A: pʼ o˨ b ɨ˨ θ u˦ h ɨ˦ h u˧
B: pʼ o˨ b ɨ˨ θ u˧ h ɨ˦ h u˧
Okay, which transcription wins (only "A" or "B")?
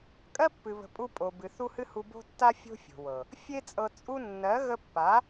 A